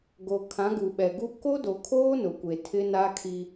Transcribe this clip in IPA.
ɡ o˨ kʰ ã˨˦ ɡ u˨ ɓ ɛ˨ ɡ u˦ k o˦ d o˨ kʰ oː˦ n ʊ˨ kʷ e˨ tʰ ɪ˦ n a˦ kʰ i˦

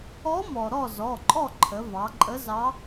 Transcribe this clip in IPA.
ɔ˧˥ m ɔ˩ ɾ ɔ˥˨ z ɔ˩˧˩ ǃʼ ɔ˥˨ ǃʰ ə˩˧ v ɑ˩˧ ǃʼ ə˧˥ z ɑ˧˥

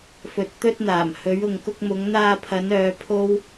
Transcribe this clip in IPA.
f ɵ˨ t̚ t̪ ɵ˧ t̚ n̪ aː˨˩ m h ɵ˨˧ ɥ ʊ˨ ŋ k ʊ˧ k̚ m ʊ˨˧ ŋ n̪ aː˧ pʰ ɐ˨˧ n œː˨˧ pʰ o˥ w

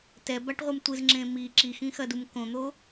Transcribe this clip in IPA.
t ɛ b a ʈ ʁʷ ɨ m tʷ ɨ z ŋ͡ǁ ẽ m i ǁ i x ĩ x ɐ d u m k õ n̪ o

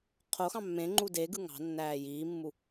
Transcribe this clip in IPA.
qʰ o x ɑ̃ mː ẽ ŋ͡ǃ u d e ɡ ɯ ŋ ɑ̤ nː æː j iː mː u

